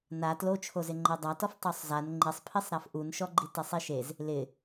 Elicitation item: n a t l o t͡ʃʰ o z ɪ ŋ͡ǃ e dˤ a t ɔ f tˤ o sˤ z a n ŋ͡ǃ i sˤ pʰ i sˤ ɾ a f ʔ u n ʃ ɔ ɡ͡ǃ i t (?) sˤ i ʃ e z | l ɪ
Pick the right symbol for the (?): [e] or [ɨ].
e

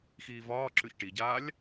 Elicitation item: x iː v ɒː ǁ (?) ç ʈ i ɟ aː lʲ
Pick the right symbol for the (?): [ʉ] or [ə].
ʉ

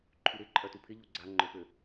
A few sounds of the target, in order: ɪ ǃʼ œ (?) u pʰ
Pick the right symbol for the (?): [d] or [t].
t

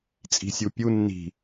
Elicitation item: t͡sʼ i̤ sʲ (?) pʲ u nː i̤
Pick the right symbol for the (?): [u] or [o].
u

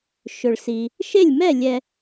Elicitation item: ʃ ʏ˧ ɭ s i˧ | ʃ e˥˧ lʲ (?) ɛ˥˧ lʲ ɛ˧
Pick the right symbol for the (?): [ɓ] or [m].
m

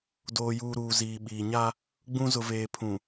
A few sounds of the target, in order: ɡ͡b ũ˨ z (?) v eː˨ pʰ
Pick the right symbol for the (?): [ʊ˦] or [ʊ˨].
ʊ˨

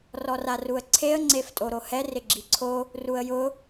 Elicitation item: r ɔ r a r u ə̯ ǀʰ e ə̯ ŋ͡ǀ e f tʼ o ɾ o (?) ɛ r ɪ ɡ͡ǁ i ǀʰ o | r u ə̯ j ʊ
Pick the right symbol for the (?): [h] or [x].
h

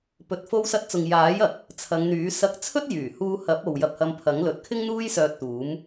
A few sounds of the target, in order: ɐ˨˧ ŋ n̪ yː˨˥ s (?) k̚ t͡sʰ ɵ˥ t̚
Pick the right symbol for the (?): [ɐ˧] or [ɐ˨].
ɐ˧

